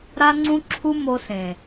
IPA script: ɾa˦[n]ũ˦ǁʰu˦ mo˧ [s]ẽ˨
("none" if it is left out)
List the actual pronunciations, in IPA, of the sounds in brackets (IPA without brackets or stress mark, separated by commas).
ŋ͡ǀ, s